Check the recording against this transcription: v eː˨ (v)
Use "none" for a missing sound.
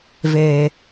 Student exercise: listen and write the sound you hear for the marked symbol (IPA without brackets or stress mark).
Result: none